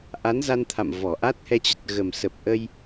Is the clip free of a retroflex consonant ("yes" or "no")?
yes